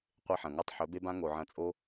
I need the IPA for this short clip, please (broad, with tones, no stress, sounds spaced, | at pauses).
qʷ e˦ ħ ɐ̃˨ ŋ a˦ tˤ ħ ɵ˨˦ b e˦ b ã˦ ŋ o˨ ʕ ɐ̃˧ t͡sʼ o˦